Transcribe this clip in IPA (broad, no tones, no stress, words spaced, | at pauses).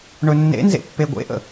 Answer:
ɳɵnːḛnzḛ pːeɡʷḛʔə̰